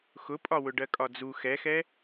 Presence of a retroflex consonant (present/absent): present